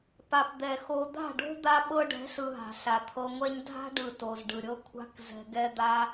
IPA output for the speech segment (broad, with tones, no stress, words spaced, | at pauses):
pa˨pd̪ɛ˨xo˧ d̪a̤˦˨ɖo̤˦ d̪a˦ɓɤ˦ ɖɛ̤˨˦ɬɯ˨ ɦa̤˨ɬa˨ t̪ʰɤ˧ŋʷɛ˦ɲ dʱa̤˦ɖɯ˨ to˨zɖɯ˨ɾʲɤ˦ kʷʰa̤˦kzɛ̤˧ ɡɛ˦d̪a˦